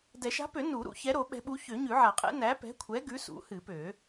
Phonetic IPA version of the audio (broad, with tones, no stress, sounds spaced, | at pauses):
d ɛ˨˩˦ ʃ a̤˨˥ p ø˨˩˦ n u˨˩˦ ɾ ṵ˨˩˦ ç ɛ˨˥ ɾ o˨˩˦ ɓ ɛ̤˨˥ ɓ u˨˥ ç ø˨˩˦ ɲ ʉ˨˩˦ ʕ a˨˩˦ qʼ ɛ̰˨˥ n æ˨˥ p ɛ̤˨˥ kʷʰ ɛ˨˥ ɡ ʉ˨˥ s ṵ˨˥ h ɨ˨˩˦ p ø˨˩˦